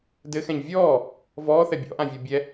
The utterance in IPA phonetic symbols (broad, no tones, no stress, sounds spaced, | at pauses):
d ɘ x ɛ̃ ɲ vʲ ɔː | v ɔː θ ɛ bʲ ɔ̰ ʔ ã vʲ ə˞ bʲ ɛ